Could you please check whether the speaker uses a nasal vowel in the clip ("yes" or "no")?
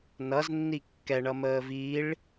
no